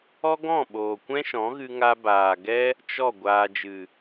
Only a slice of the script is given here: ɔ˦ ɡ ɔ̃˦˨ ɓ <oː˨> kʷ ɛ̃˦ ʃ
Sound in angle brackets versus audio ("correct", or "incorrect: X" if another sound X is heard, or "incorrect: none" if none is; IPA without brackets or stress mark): correct